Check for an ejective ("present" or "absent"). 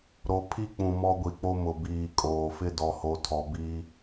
present